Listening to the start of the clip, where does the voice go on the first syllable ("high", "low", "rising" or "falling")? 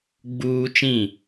high